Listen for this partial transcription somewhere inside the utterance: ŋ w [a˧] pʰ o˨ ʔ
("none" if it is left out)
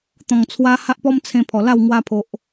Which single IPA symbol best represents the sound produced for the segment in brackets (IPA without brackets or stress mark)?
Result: a˧